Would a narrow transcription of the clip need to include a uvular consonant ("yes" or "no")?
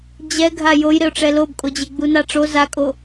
no